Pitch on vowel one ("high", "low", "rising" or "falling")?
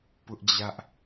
high